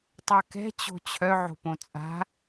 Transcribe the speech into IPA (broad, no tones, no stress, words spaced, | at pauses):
tˤakɛ̤ t͡ɕo̤t͡ɕʰœ ʕo̤põt͡sʼa̤